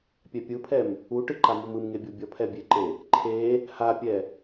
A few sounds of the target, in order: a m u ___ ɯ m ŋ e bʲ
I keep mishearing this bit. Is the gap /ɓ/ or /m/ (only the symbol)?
m